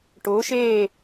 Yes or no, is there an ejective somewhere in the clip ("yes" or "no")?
no